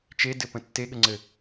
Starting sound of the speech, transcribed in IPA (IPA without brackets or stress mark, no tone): t͡ʃ